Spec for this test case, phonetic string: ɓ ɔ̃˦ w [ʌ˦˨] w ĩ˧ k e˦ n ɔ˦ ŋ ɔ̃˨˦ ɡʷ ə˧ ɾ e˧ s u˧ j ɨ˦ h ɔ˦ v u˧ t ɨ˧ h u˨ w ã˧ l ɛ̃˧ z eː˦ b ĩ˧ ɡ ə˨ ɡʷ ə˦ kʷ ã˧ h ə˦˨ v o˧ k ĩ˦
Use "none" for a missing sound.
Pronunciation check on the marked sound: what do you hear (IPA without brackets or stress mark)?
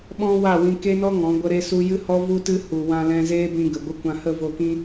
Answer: a˦˨